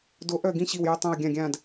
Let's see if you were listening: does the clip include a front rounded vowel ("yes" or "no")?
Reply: yes